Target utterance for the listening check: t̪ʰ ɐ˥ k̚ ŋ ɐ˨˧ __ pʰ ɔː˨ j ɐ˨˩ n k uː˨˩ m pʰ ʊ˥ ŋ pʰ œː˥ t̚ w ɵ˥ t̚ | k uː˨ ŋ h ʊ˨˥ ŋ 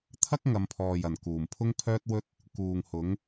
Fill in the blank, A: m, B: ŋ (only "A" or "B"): A